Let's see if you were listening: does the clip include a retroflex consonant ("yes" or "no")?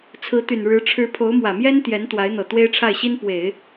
yes